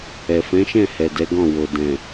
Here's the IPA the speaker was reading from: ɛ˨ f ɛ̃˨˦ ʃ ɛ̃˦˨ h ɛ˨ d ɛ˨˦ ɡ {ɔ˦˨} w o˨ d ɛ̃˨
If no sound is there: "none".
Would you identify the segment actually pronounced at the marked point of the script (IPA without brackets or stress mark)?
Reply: ɔ̃˦˨